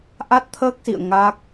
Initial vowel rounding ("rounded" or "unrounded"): unrounded